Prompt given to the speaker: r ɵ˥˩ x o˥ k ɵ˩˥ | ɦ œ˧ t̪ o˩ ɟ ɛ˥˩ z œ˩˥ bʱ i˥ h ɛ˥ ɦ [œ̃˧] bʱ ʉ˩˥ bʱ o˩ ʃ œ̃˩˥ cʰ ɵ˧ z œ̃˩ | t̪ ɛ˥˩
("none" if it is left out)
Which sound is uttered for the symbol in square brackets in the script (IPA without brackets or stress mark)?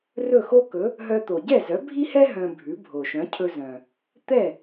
œ̃˧